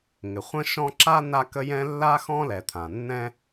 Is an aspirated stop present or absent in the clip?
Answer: present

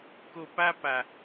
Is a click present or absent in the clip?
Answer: absent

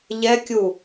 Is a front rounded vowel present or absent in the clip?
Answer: absent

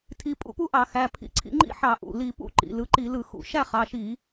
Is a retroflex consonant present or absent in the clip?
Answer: absent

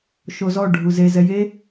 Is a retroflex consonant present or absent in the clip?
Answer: present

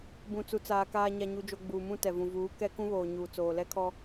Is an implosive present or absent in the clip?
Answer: absent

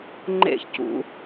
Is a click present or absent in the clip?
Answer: present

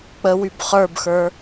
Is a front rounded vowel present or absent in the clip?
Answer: present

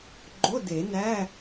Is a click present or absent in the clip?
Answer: present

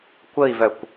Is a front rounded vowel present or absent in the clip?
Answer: present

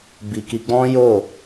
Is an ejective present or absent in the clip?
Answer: absent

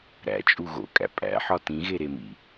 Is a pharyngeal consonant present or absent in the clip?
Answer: present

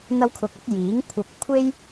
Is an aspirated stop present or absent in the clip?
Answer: present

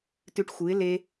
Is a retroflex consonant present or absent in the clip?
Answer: present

